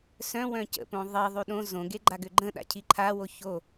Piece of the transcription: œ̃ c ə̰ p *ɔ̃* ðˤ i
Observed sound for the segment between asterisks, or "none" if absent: õ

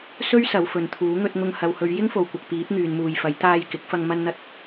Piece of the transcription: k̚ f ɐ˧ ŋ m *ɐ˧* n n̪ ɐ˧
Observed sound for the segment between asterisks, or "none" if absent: ɐ˧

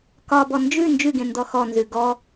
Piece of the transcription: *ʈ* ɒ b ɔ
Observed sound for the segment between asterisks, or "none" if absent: k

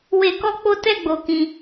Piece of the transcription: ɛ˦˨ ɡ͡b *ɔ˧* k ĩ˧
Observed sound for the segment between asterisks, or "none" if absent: o˧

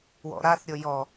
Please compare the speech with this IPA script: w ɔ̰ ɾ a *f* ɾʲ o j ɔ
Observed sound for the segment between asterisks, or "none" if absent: θ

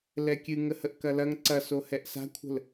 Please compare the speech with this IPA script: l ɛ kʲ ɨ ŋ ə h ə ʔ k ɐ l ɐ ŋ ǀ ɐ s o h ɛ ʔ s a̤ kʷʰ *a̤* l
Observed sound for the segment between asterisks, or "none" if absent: ə̤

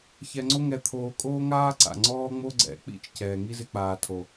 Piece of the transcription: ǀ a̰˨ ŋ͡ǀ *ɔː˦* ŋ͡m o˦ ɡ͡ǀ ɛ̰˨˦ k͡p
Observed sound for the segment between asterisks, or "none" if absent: ɔː˦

